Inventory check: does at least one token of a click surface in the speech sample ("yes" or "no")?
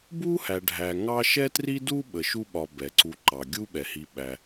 yes